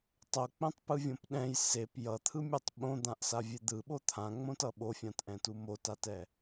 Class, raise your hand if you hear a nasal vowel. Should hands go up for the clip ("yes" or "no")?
yes